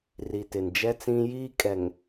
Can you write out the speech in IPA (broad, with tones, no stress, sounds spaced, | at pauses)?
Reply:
r i˨ t ɪ˨ n d͡ʒ ɛ˦ t͡s ĩ˦ j iː˦ kʼ ɛ˨ ŋ